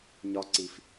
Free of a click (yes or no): no